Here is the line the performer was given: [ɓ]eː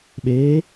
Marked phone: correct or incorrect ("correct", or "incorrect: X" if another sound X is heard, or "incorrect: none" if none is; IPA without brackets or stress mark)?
correct